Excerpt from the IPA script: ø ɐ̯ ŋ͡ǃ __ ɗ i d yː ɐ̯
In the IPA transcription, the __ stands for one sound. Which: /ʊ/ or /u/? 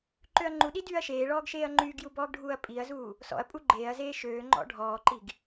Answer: u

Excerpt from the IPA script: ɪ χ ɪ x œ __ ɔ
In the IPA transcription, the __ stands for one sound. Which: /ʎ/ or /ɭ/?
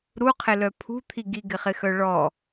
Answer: ɭ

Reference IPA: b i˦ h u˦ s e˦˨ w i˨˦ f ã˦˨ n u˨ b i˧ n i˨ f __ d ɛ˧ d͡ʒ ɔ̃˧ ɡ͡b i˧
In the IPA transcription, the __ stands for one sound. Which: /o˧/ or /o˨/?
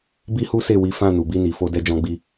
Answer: o˧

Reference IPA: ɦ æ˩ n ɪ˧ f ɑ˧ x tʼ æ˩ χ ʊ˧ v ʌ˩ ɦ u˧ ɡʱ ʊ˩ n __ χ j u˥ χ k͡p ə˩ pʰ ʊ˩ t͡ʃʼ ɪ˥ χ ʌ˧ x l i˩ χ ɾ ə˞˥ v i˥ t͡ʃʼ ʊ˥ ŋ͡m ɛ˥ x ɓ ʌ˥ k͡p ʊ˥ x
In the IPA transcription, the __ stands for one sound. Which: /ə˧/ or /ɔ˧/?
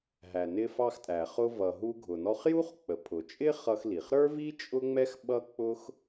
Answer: ɔ˧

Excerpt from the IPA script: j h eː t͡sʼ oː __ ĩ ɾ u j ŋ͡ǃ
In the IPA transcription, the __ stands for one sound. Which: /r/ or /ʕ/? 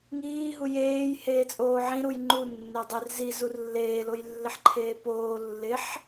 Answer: ʕ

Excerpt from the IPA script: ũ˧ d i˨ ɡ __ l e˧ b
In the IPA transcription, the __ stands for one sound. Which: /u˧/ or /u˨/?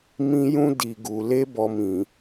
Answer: u˨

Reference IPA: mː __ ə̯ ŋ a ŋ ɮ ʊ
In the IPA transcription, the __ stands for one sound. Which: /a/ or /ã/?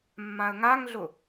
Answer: ã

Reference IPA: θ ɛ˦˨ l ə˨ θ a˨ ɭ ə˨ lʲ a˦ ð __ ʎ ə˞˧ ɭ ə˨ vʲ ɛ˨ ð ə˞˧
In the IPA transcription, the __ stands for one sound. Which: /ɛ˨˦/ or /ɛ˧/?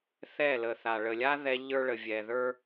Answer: ɛ˧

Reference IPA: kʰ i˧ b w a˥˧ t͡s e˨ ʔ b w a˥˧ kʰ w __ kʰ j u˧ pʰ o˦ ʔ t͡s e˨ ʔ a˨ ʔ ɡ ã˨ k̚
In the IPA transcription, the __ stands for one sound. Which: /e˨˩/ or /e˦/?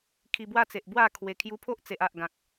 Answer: e˨˩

